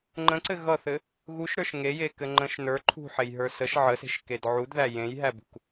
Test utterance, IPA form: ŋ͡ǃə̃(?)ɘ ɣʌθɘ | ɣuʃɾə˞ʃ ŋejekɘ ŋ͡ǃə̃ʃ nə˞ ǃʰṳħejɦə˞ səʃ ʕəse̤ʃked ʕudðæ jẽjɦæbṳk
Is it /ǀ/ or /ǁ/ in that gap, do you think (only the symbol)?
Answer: ǀ